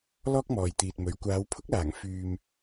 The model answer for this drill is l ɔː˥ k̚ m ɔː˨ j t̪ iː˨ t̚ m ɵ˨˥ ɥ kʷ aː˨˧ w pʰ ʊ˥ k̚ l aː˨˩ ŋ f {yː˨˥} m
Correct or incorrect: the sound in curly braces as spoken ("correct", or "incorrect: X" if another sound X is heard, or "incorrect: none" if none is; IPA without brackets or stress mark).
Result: incorrect: yː˨